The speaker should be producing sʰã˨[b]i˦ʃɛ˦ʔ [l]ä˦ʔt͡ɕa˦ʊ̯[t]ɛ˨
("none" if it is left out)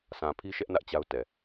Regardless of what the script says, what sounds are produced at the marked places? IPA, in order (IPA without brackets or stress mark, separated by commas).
pʰ, n, t